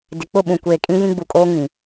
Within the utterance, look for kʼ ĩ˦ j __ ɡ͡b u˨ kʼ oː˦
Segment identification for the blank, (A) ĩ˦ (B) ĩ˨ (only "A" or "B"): A